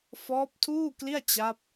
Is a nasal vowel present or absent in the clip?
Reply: absent